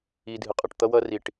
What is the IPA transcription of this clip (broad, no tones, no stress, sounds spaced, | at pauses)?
i dʱ ɨ qʼ ɯ ʈ t̪ ʌ w ʌ r i ʈ